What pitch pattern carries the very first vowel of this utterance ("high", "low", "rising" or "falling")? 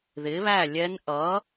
rising